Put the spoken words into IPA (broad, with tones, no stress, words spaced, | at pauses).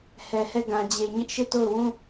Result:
hɛ˨hɛ˦˨ ɡã˨d͡ʑe˨ɲɪ˦ʔ ʃe˦˨to˦˨ʊ̯wũ˦